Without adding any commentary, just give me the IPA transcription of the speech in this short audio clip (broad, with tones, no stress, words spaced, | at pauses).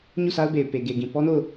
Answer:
ɲu˦˨sʰa˦ʊ̯be˨ɪ̯ pe˨ɡe˨ɡĩ˨ pɔ˦no˦˨ʊ̯